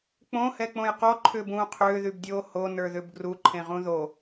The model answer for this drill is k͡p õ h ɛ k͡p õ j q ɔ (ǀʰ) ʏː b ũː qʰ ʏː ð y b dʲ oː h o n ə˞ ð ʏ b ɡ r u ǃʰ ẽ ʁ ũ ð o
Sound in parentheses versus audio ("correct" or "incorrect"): incorrect